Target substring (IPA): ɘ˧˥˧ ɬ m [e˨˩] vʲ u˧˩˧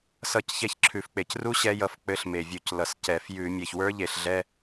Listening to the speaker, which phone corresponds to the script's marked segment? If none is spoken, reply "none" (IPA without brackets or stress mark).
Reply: e˨˩